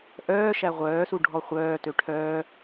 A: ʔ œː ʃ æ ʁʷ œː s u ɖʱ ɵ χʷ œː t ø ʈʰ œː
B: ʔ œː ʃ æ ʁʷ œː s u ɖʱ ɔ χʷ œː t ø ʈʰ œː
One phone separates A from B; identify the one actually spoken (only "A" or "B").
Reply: B